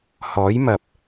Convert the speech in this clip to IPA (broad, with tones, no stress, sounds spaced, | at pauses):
h ɔː˨˥ j m ɐ˨ p̚